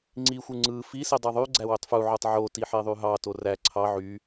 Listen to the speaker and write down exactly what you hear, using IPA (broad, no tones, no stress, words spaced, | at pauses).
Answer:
ŋ͡ǀixʷɯ ŋ͡ǀɯ fisi dˤɯðˤyɡ͡ǀæ wøtˤfuʕotˤ ʕoti ħeðˤyɦɑto ræ ǀʰɑ ʕy